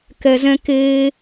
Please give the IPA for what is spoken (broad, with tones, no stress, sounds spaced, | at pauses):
k ɛ˨ z ɛ̃˧ k eː˧